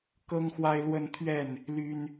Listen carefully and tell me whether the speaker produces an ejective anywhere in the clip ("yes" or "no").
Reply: no